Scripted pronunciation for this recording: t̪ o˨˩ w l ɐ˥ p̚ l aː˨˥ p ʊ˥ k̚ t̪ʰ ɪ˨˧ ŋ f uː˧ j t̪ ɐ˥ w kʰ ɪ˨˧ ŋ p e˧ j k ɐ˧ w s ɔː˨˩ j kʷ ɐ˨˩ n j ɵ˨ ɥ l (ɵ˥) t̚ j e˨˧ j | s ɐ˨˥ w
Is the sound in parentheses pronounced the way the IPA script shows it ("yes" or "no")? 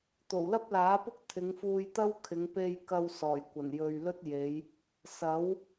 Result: yes